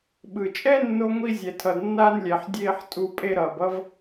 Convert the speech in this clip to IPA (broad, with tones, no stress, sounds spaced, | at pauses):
ɓ ɯ˩ t͡ʃʼ ɛ˥ nː o˧ ŋʷ i˧ zʲ ɛ˩ tʰ ʌ˩ d nː aː˥ n lʲ ɛ˩ ħ dʲ eː˥ ħ tʼ u˧ pʼ e˥ ɾ ʌː˩ b ʌ˥ v